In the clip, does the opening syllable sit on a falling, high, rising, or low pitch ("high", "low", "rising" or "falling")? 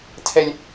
high